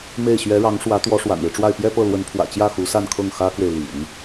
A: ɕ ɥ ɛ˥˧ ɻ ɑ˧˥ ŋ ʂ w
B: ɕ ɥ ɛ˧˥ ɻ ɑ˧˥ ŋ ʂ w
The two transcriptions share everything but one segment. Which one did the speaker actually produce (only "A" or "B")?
B